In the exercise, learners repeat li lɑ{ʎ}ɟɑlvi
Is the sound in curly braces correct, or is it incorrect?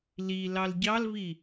incorrect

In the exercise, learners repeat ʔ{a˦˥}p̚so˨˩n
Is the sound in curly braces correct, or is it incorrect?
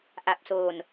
incorrect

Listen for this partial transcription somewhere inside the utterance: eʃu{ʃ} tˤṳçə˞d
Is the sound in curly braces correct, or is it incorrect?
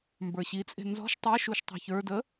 correct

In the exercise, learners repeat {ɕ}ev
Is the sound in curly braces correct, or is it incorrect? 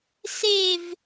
incorrect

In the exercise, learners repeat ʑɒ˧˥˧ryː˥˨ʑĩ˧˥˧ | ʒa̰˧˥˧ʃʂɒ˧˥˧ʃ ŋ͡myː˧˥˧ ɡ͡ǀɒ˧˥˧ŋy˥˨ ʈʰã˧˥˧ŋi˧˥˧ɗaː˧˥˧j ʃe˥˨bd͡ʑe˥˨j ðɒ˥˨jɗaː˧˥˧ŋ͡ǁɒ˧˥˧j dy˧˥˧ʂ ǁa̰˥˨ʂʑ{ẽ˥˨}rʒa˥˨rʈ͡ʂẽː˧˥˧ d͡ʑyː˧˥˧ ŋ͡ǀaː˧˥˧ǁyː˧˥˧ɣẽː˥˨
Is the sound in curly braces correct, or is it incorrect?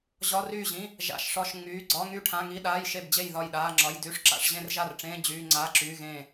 correct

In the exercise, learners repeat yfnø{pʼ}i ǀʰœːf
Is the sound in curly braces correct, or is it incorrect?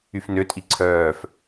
incorrect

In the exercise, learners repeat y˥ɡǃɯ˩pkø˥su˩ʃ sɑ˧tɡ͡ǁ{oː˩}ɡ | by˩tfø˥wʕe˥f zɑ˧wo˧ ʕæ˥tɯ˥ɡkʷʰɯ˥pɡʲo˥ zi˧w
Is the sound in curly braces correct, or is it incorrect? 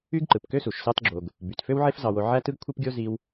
incorrect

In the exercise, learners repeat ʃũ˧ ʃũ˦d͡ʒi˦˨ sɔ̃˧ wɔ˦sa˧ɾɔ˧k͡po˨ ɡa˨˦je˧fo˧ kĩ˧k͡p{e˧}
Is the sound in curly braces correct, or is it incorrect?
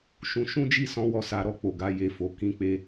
correct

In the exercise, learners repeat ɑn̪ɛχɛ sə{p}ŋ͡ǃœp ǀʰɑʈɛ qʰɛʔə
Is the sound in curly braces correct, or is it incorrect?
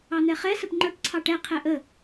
correct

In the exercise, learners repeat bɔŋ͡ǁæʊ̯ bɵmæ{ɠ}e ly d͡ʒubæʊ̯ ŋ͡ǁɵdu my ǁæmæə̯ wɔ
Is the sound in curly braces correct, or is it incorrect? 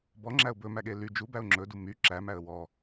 correct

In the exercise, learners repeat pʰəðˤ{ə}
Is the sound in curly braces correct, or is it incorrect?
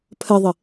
correct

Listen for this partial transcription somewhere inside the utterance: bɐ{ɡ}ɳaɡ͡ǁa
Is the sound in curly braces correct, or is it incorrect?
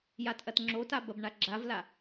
incorrect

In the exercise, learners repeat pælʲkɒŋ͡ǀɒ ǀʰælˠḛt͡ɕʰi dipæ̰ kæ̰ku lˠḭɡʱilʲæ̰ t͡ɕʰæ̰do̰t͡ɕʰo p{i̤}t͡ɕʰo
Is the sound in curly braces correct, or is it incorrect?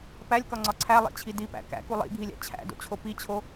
incorrect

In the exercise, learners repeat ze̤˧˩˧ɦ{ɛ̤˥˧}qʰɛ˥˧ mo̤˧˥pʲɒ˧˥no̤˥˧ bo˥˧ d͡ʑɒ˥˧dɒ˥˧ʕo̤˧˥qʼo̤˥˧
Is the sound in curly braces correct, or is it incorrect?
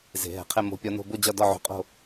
incorrect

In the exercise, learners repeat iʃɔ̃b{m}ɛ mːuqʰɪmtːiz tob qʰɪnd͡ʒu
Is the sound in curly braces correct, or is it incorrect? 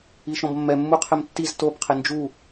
incorrect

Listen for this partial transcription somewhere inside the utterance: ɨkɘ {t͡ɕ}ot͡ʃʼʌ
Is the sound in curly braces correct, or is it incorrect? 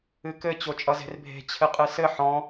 correct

